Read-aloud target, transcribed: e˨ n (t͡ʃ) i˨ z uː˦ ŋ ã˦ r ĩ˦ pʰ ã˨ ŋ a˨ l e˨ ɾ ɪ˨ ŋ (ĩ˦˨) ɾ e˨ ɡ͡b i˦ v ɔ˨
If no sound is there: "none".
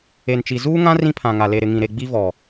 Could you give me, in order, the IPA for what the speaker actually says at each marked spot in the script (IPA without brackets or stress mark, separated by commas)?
t͡ʃ, ĩ˨